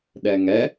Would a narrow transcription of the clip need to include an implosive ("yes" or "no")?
yes